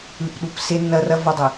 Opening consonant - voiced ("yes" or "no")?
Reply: no